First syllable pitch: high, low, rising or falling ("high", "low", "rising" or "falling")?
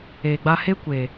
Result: low